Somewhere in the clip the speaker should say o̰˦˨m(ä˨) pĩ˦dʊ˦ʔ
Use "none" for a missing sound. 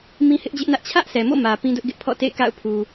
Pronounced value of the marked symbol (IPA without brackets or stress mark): ä˨